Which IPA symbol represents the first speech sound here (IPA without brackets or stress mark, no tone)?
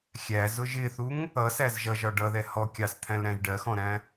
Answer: xʲ